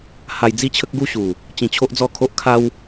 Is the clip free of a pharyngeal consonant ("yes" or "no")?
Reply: yes